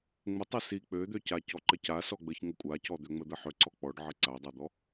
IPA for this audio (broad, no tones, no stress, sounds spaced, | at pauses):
ŋ͡m ə tˤ ə s i k͡p ø d̪ ø c a c ɔ ǃ ə c a s ɔ ɡ͡b ə ç ŋ ə kʷʼ a c ɔ d̪ ø ŋ͡m ə d̪ ə ħ ø ǀ ɔ k͡p ɔ ɖ ʕ ə ǀ a dˤ a d̪ ɔ